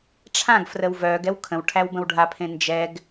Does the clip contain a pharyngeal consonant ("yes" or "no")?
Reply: no